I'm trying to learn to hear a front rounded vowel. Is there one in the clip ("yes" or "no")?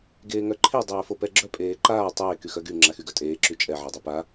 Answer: yes